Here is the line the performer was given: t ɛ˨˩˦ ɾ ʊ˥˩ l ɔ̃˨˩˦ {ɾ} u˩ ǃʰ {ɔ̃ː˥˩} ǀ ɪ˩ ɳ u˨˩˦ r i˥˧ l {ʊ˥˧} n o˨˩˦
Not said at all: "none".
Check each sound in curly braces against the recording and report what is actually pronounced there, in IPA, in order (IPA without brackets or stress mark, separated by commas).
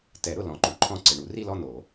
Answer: ǃ, ɔ̃˥˩, ɔ˥˧